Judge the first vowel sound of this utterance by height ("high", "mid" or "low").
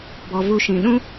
mid